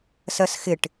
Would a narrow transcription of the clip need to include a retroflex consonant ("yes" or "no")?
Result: yes